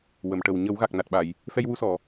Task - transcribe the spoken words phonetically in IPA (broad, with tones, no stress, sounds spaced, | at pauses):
w ə˨˩˨ m ʈ ə˨˩ w ɲ ə˨˩˦ w ɣ a˨˩ k̚ n a˨˩ t̚ ɓ a˨˩˨ j | f ɛ˧ j w u˧ s ɔ˨˩˨